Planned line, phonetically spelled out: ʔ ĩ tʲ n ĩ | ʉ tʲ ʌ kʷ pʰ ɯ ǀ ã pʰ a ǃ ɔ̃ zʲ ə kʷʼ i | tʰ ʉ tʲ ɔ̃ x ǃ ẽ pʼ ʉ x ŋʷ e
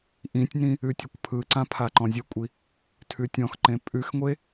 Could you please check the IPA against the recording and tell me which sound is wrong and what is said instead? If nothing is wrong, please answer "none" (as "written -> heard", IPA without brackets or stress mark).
none